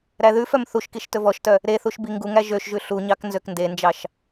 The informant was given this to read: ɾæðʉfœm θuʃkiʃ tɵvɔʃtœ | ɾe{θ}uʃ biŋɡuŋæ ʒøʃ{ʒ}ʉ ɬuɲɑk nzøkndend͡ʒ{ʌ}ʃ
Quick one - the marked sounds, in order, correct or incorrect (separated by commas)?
correct, correct, incorrect